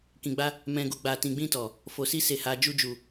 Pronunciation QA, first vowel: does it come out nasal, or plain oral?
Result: nasal